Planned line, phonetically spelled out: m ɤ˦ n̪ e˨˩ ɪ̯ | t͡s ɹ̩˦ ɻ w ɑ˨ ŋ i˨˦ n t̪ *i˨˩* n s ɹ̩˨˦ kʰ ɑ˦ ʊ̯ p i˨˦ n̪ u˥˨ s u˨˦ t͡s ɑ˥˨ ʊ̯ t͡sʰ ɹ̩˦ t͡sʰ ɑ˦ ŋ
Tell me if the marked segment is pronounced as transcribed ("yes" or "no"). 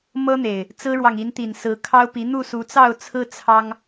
yes